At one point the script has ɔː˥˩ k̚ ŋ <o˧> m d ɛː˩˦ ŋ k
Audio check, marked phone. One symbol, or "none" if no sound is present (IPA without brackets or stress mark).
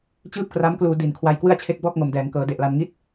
o˨˩